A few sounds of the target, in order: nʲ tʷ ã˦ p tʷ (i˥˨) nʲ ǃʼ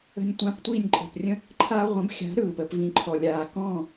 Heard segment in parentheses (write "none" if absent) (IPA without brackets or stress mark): i˥˨